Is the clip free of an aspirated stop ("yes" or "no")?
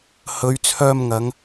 no